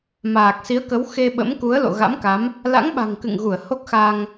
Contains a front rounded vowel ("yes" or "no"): no